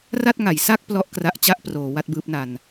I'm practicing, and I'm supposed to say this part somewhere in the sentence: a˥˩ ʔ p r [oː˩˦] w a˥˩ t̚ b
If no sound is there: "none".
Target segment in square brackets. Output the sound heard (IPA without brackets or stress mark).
oː˩˦